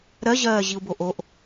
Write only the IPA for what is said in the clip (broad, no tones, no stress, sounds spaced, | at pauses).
ɾ ɜ ʑ ɜː ʑ i u̯ b o ʔ o ʔ